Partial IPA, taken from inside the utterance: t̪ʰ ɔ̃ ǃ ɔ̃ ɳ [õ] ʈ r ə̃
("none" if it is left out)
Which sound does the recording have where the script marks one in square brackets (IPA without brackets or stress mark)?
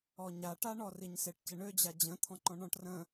ɔ̃